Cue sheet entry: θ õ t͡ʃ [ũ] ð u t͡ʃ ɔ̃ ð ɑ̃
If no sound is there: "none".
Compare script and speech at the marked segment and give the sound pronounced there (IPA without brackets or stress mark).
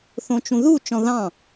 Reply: ũ